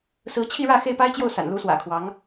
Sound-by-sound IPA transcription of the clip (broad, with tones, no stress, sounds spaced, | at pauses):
s ɹ̩˧˥ t͡ɕʰ i˥˧ ɻ ä˥˧ x e˥˩ ɪ̯ p a˥ ɪ̯ t͡ɕ j o˥˩ ʊ̯ s a̰˨˩ n l u˧˥ s w ä̰˨˩ kʰ w ɑ˧˥ ŋ